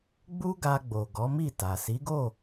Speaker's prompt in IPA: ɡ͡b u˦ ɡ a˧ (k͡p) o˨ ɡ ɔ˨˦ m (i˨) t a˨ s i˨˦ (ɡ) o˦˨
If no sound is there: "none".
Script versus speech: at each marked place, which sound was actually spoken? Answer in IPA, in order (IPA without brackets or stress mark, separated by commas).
ɡ͡b, i˦˨, ɡ